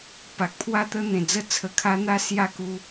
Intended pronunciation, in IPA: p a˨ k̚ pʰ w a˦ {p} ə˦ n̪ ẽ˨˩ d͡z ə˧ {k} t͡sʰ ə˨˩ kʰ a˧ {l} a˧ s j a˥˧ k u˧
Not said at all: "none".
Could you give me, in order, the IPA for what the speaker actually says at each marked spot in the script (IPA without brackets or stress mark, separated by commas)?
t̪, none, n̪